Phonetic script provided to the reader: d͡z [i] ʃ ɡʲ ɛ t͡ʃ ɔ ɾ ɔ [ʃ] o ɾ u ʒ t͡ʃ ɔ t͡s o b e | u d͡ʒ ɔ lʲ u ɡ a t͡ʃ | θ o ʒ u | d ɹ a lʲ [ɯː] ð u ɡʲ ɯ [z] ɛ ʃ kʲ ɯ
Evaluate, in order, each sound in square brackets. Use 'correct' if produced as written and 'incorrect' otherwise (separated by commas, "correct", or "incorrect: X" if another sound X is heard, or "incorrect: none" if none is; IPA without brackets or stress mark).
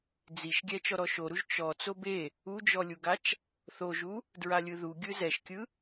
correct, correct, incorrect: ɯ, correct